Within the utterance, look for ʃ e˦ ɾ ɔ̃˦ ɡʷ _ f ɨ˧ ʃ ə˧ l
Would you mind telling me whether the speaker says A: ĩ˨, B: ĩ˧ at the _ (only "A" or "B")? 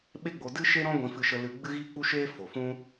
B